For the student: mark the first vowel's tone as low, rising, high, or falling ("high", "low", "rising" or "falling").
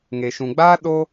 low